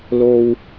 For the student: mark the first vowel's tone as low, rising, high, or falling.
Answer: low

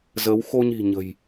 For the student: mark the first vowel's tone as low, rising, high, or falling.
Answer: rising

